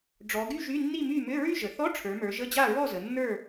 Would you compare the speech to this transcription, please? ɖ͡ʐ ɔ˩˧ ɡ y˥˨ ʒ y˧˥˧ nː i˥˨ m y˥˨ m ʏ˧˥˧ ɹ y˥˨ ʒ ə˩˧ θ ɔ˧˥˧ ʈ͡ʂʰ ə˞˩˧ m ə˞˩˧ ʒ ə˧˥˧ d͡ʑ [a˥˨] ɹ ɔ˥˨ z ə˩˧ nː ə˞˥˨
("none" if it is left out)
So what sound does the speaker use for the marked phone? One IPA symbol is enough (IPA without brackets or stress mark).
a˥˨